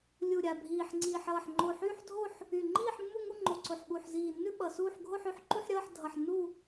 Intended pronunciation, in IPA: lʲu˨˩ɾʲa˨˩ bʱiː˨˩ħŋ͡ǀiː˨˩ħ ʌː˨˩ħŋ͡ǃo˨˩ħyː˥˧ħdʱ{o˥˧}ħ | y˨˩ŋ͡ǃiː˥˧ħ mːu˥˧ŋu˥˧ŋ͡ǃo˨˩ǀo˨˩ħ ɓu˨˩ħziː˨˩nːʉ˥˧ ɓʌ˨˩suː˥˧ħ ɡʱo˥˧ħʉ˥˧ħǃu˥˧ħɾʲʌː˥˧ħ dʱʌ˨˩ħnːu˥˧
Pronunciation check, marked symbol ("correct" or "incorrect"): correct